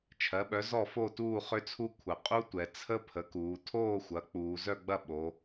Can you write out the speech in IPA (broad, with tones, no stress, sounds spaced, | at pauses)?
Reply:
t͡ʃʰ ɜ˩˥ ɓ œ˩˥ z ɔ˥˨ f o˥˨ t uː˥˨ χ ʏ˦˥ t͡sʰ u˦˥ kʷʰ ə˩˧ qʼ u˦˥ tʷ ɛ˩˧ t͡sʰ ə˦˥ pʰ ə˩˥ k uː˩˧ tʰ oː˥˨ xʷ ɐ˩˥ k͡p uː˩˧ z œ˥˨ ɡ͡b ɐ˥˨ ɓ o˩˧